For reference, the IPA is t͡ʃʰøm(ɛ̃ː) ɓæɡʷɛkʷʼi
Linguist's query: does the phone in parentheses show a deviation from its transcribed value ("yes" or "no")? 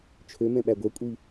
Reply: yes